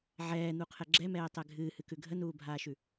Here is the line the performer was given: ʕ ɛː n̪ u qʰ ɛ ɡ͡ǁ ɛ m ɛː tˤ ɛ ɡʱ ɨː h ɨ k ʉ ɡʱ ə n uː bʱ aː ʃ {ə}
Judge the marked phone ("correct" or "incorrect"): incorrect